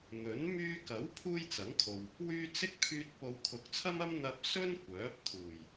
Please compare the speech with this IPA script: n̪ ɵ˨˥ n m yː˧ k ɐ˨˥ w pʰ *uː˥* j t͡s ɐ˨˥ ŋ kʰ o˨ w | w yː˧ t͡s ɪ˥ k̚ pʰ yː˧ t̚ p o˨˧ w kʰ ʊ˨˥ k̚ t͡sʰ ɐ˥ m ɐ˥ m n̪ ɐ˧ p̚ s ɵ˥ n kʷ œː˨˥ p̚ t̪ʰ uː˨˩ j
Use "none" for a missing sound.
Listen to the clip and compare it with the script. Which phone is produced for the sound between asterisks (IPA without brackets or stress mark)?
uː˥